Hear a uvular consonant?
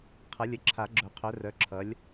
yes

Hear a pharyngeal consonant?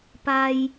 no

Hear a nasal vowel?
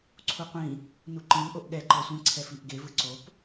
yes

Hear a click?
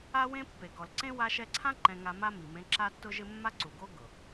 yes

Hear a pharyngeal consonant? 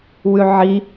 yes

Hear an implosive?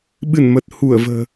yes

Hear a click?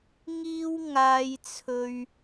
no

